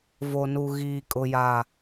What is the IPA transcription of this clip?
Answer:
v o˨ n u˨ ɣ iː˨ kʼ ʊ˨ j a˨

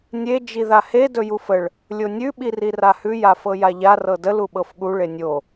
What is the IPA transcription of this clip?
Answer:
nʲ e d͡ʒ i ð a h e d ɵ j u f ə ɭ | lʲ o nʲ ʉ ɓ i r i r a h ʉ j a f ɤ j a ʎ a r ɤ d ə l u ɓ ɤ f ɠ u ɭ e nʲ o

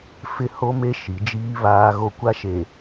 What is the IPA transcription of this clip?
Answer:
f ɪ˦ h o˦ m e˦ ʃ i˨˦ d͡ʒ iː˦ β aː˦ ɣ o˦ kʷ a˦ ʃ e˨

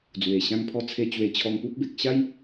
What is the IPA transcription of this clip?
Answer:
d͡z w e˨˩ ɕ ã˧ ŋ pʰ ɔ˧ t͡sʰ e˧ t͡ɕ w e˧ t͡ɕʰ ɔ˧ ŋ p u˦ p̚ b e˨ k̚ ɕ a˦ j

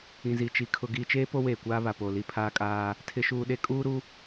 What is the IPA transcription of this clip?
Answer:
ĩ˨ z i˨ t͡ʃ i˨ kʰ ʊ˨ ɡ iː˨ t͡ʃ eː˦ p o˦ w eː˨ kʷ aː˦ β a˨ p o˨ l i˦ pʰ aː˦ kʼ aː˦ | tʰ ɪ˨ ʃ uː˨ ɗ e˦ kʼ uː˦ ɾ u˦

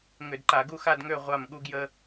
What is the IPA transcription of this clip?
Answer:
ŋ ʏ˧˩˧ d ǃ a˧˩˧ ɡ u˥˨ x a˥˨ d ŋ ø˥˨ ʁʷ a˥˨ m ɠ u˥ ɡ j ə˥

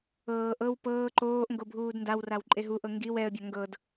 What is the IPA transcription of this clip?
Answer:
ɤː ʔ ɤ w p ɤː ǃ oː ʔ ŋ ɡ o bʱ uː d n d a w r a w ǃʼ e ɦ u ʔ ɤ ŋ ɡ i w ɛ ə̯ bʲ a ŋ ɡ ɤ d

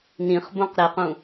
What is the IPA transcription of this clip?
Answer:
n ĩ χ b õ q ɾ e q ũ

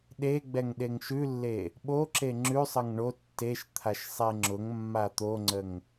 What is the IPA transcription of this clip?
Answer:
ɗ e ɡ͡b ɛ ŋ ɗ e ŋ ʃ ʉ lː e | ɓ o ǁ e ŋ͡ǁ ʉ sˤ ə ŋ ɳ o tː e ʃ t̪ʰ a ʃ sˤ e ŋ͡ǁ ʊ ŋ mː a t̪ o ŋ͡ǀ ə ŋ

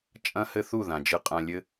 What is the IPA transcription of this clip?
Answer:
t͡ʃʼ ɐ̃˦ h ɘ˦ θ u˦˨ ð ã˨ d͡ʒ ɨ˧ qʼ ã˧ lʲ ɘ˦

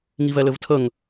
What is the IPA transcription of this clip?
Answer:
ŋ i v ɛ l ɘ v tʰ ə ŋ

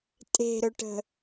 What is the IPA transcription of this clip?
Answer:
tʼ e̤ ɾ ɵ ʈ ə̤

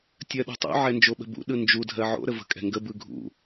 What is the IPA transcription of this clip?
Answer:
tʲ ɜ ɗ o̤ tˤ ṵ ʕ ɛ n d͡ʒ o ɓ ə̤ b ṵ ɗ ɯ n d͡ʒ u dʱ ɜ ʕ o̰ ɾ ə v ə̤ kʼ ɛ̤ ŋ ɡ ə b ɯ ɡʱ ṵ

